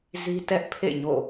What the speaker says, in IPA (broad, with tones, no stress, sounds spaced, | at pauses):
z i˦ t ɛ˦ ʔ pʰ ḛ˦˨ ɲ o̰˦˨